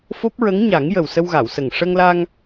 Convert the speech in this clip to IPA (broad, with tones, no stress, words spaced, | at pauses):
fo˦˥p̚ ɹə˧˥ŋɲa˨˩˦ŋjə˨˩w sə˧wɣa˨˩˨wsə˨˩ŋ ʂə˧ŋla˧ŋ